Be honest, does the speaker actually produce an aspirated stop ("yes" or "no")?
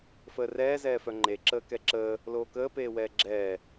no